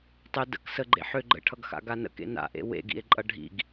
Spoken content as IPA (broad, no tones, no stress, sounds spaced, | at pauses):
tˤ ʏ d ə̰ k s ə ɡ͡ǃ ḛ ħ ʏ ɡ͡ǃ ə̰ ʈʰ ʌ ɡ x a̰ ɡ a n ə̰ k ḛ n a̰ ʔ ḛ w ḛ ɡ ḭ e̯ ǃʼ ʌ ɖʱ ḭ ɡ